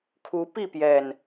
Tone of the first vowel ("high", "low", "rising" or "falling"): rising